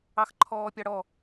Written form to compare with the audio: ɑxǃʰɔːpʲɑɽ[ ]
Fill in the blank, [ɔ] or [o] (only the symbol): ɔ